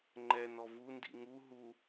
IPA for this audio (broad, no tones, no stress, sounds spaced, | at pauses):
ŋ͡ǃ ɛ n ɔ v u n d ḭ ŋ u ɦ u